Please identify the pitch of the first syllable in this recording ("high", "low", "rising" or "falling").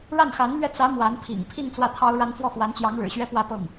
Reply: falling